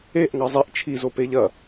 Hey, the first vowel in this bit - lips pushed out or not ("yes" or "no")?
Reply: no